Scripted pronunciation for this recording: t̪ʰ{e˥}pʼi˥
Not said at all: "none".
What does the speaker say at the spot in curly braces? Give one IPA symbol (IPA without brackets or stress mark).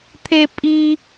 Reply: e˥